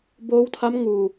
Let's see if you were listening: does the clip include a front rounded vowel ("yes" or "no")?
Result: no